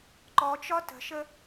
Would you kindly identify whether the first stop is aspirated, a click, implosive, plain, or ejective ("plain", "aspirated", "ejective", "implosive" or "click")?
click